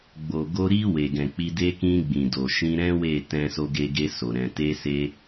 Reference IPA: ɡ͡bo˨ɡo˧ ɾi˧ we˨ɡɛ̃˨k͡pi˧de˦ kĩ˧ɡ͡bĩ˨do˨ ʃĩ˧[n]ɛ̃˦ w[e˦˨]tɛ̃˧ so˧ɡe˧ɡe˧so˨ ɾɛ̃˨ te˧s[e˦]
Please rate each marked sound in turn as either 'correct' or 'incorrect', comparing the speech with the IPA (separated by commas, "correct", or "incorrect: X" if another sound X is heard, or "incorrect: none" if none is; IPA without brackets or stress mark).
incorrect: ɾ, correct, incorrect: e˧